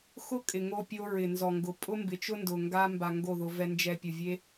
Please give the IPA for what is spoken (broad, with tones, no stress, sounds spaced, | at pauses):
x ʊ˦ kʼ ɪ˨ ŋ o˧ pʲ o˧ ɹ ɪ˨ n z ɔ˨ ŋ ɡ ʊ˨ pʼ ʊ˦ m b ɪ˨ t͡ʃ ʊ˦ n d ʊ˨ ŋ ɡ a˧ m b a˨ ŋ ɡ o˦˨ ð ʊ˧ v ɛ˧ n d͡ʒ ɛ˨ pʲ ʊ˨ vʲ e˧